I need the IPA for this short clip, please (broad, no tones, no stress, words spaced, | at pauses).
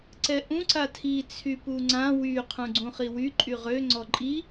ǀɛʔũ ǀatʰi t͡sʰypuŋ͡ǀã wy qʰũɡ͡ǀũχiwy ǃʼyʁø ŋ͡ǀɔǃʼi